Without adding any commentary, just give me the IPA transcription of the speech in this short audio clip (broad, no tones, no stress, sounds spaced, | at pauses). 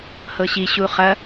h ɤ ɕ i ɕ u χ ɐ